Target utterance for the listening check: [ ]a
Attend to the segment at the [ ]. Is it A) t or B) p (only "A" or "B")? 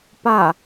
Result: B